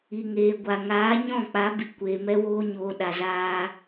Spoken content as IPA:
i˨ ŋ eː˨ ɡʷ a˨ ŋ aː˨˦ ɲ ɔ̃˦˨ k͡p a˨˦ b i˨ kʷ eː˨ m ɛ˦ w oː˦ ɲ oː˨ ɗ a˨ z aː˧

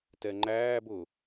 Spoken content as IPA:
t ɛ ŋ͡ǃ æː b ʊ

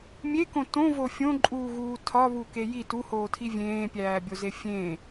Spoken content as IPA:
mʲ e k õ t õ v o fʲ õ ǃʼ uː ɣ uː tʰ ɒ β u k e j i t u h oː tʰ i vʲ ẽː pʲ æː bʲ o z e fʲ ẽ

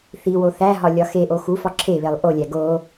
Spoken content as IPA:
θ i w o θ æ ɦ ɒ lʲ ɒ x e ʔ o x u f ɒ ǁʰ e β e lˠ ʔ o lʲ æ ɡ o

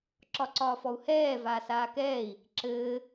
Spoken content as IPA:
ǁ ɒ ǀ ɒː f ɔ u̯ h ɛː v aː s aː k ɛː i̯ | ǁ ɘː

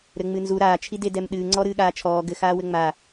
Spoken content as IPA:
ɾ ɘ ŋ͡m ɨ n z u ɾ aː t͡ʃʰ i d e d ɛ m ɗ ɨː ŋ͡ǀ ɔ ɾ ɨː ɠ aː t͡ʃʰ ɔː ɡ ɘ x aː w ɘ ŋ͡m a

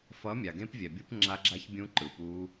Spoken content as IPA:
f ʌ˨˦ mʲ a˨ ɡ ẽ˦˥ p vʲ ɛ˨ bʲ u˦˥ p ŋ͡ǁ a˦˥ ɡ͡ǁ a˦˥ ç bʲ ũ˦˥ ǃ ɯ˨ p u˦˥

